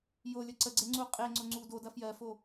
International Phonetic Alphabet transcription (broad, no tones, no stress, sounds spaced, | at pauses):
j o lʲ ə ǀ ə ɡ͡ǀ e ŋ͡ǀ u qʼ e ŋ͡ǀ ʊ ŋ͡ǀ u d o d ɐ f j ɜ f o